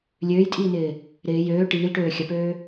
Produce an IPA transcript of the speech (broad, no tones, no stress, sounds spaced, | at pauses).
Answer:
lʲ øː j tʼ iː n ɪː | ɾ ɪː j øː ʈ iː l ʈ øː xʲ ɐ p øː